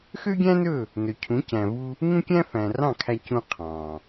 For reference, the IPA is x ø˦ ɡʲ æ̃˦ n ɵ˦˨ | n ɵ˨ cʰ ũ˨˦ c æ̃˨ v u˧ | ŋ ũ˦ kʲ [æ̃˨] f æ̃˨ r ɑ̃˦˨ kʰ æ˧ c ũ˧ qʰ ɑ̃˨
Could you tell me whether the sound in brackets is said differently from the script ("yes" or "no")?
yes